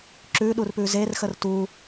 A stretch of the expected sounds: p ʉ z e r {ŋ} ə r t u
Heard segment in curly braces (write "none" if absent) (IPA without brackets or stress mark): x